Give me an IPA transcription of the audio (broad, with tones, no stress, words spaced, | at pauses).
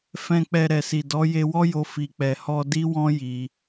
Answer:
fɛ̃˧ k͡pɛ˨ ɾɛ˨si˨ dɔ˨˦je˧wɔ˦jo˧ fi˨k͡pɛ˨hɔ˧ di˦wɔ̃˦ji˧